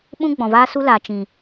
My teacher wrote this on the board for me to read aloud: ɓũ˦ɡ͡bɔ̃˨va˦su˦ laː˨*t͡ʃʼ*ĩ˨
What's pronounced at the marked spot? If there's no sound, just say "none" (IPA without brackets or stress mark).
t͡ʃ